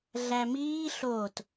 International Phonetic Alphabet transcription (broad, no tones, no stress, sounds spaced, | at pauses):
ɮ æ m iː ɬ o t